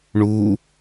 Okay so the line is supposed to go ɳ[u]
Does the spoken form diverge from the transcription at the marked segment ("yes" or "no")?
no